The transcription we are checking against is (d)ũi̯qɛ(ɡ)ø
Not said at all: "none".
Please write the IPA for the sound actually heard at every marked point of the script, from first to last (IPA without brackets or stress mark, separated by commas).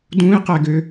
d, ɡ